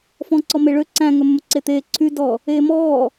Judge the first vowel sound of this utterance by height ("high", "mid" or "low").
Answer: mid